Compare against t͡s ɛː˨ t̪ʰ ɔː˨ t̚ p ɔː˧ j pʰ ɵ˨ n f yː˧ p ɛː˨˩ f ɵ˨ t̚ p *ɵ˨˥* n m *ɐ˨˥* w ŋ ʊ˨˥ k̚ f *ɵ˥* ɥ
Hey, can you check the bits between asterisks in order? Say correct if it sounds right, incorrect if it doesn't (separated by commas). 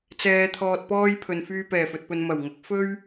incorrect, incorrect, correct